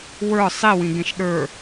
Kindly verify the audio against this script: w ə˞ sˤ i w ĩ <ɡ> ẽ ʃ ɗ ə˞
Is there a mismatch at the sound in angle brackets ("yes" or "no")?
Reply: no